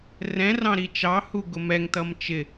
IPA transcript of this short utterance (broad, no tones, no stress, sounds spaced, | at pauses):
r ɛ̃ r ɑ̃ ɾ i t͡ʃ ɑ h u ɡ ʊ m ɛ ŋ t ʌ m t͡ʃ ɪ